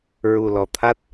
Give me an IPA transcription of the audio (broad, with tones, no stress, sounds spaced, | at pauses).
ɹ u˨˩ l ɔ˨˩ t̪ʰ a˦˥ t̚